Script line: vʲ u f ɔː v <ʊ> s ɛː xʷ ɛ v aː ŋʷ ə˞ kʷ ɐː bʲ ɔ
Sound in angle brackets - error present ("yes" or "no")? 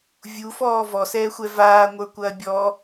yes